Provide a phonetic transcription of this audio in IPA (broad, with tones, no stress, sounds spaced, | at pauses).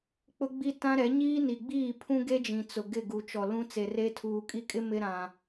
k͡p ʊ˦ ɡ͡b i˦ t ã˦ ɾ ɛ˨˦ ɲ iː˦ n i˨ ɡ͡b iː˦˨ pʰ ũ˦ ɡ e˦ d͡ʒ ĩ˨ t͡s ʊ˨ ɡ ɪ˦˨ ɡ u˨ t͡ʃ ɔ˨ l ũ˦ t͡s e˨ r e˦ tʰ uː˨ kʼ i˦˨ kʼ ɪ˦ m ɪ˦ ɾ ã˨